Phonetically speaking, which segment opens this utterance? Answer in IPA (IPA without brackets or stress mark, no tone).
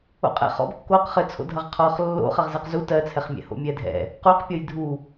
o̰